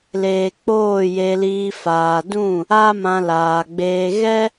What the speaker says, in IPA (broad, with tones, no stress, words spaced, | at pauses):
leː˨ k͡poː˦˨je˧liː˧ faː˨dũ˦˨ | a˦mã˧laː˨ɡ͡beː˧ ɣɛ˦